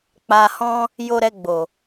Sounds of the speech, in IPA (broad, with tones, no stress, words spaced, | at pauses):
k͡pa˧hɔ̃˦ | jo˧ ɾɛ˧ɡ͡bo˨